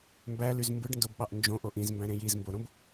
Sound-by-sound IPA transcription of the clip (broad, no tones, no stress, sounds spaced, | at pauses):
m b æ l y z m b ɯ ɖ n d o b ɓ ɑ ʔ n d͡ʒ õ ʔ o ʔ ĩ z m b æ̃ ɾ ẽ j i z m b o ɾ õ b